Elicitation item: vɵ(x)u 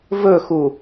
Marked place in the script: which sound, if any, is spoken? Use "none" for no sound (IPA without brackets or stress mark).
x